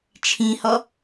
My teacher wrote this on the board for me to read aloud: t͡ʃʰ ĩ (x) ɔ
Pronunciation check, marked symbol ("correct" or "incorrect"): incorrect